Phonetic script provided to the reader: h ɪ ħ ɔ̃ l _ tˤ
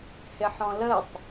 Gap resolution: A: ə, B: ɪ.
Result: A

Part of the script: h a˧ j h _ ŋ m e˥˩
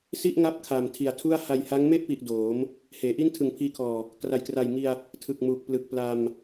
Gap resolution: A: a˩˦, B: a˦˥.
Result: B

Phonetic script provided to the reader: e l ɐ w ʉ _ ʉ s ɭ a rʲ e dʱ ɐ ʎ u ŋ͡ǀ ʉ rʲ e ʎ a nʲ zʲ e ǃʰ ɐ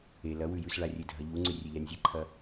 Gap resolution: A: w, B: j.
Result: B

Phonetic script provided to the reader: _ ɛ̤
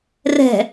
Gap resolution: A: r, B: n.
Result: A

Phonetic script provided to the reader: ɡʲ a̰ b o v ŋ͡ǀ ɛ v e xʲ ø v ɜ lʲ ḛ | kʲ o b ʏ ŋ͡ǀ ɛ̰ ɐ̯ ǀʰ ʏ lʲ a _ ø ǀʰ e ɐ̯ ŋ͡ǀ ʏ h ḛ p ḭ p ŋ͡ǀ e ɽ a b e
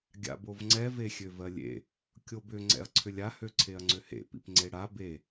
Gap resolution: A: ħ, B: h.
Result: B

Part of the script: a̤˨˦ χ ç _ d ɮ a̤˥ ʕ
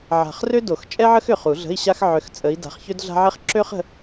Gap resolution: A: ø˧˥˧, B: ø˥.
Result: B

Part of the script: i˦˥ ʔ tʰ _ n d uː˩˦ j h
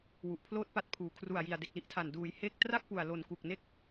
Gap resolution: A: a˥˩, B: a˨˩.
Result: B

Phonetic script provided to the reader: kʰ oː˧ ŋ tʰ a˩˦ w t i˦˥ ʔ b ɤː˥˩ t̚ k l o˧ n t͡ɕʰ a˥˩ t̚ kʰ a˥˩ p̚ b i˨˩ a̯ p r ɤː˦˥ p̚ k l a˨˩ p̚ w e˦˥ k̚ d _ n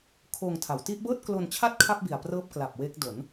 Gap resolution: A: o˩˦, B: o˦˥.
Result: A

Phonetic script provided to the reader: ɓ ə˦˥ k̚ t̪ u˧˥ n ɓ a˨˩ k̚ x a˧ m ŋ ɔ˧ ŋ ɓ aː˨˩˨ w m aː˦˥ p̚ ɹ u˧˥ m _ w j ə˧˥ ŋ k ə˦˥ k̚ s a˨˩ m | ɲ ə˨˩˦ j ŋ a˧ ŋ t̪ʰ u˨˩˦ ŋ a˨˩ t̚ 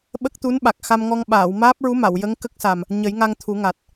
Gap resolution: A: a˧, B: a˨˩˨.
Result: B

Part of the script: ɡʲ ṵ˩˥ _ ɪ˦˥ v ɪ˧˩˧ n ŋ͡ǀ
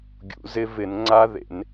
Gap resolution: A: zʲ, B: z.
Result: B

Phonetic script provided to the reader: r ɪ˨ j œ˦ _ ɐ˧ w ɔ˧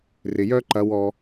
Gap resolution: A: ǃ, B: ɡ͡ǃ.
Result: A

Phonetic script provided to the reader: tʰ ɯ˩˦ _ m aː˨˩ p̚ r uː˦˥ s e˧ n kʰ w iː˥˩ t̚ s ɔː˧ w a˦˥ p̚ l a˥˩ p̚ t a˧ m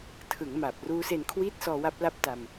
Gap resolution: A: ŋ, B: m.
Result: A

